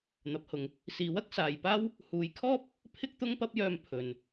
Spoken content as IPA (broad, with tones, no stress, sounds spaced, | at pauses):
n̪ ɐ˨˥ p̚ h ʊ˨˧ ŋ | s iː˨˥ w ɐ˥ k̚ s aː˨ j p aː˥ w | h uː˨˧ j kʰ ɔː˥ p̚ | pʰ ɪ˥ k̚ t̪ ʊ˥ ŋ p ɐ˥ p̚ j œː˧ m pʰ ɵ˨ n